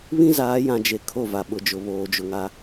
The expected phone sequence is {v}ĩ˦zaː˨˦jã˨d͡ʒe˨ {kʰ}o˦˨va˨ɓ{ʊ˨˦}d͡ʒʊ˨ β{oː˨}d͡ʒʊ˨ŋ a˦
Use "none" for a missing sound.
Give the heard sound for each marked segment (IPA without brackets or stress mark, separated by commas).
β, kʰ, ʊ˨, oː˨